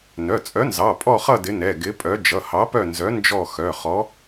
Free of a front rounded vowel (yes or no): no